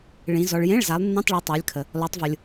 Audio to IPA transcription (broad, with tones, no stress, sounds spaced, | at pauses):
ɭ ĩ˨˦ z ɔ˨ ɭ j ẽ˧˥˧ ɭ z a˨˦ lˠ nː ĩ˧˥˧ tˤ ɭ ɔ˨˦ tˤ a˨˦ lʲ kʰ ə˨ | l ɔ˨˦ tˤ v ʊ˨ lʲ